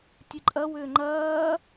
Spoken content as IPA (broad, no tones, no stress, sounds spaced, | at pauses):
tʲ ɨ ǃʼ ɐ w ʏː ŋ͡ǃ ɐː